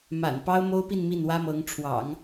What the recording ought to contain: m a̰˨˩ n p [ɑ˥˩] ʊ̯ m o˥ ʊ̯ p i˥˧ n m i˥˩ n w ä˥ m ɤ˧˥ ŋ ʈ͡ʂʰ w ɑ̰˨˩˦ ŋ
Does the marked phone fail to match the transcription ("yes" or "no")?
yes